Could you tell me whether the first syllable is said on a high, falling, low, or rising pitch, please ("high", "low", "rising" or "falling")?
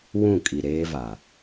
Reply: falling